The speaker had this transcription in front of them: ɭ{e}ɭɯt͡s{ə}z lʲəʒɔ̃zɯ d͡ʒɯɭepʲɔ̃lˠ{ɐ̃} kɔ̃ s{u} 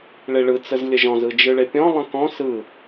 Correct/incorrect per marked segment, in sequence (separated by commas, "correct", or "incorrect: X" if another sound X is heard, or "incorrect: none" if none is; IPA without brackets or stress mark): correct, correct, incorrect: ə̃, incorrect: ɯ